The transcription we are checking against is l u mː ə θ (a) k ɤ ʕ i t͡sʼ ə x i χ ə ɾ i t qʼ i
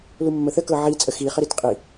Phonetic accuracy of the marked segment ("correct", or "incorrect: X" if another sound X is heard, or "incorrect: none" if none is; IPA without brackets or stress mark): incorrect: ə